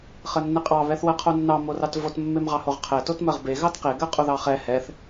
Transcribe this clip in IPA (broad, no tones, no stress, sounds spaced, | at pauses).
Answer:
χ ɜ nː e qʼ ɑ β ɛ θ w ɜ qʰ o nː ɑ m o r ɑ t v o t mː e m ʁ ɑ h o ʁ qʰ ɛ t o t m ɜ ʁ b e ɣ ɑ t q e ɡ ɜ qʼ o ð ɑ χ ɛ h ɛ θ